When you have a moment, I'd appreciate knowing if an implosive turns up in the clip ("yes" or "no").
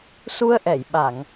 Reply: yes